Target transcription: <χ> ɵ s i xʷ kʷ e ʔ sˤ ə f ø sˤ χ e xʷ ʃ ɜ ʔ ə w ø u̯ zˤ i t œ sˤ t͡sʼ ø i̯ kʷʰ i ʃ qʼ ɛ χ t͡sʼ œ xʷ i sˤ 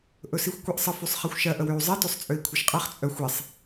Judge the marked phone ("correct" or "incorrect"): incorrect